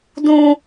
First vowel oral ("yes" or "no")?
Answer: no